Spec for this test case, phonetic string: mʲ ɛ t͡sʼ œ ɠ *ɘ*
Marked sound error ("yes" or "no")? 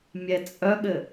no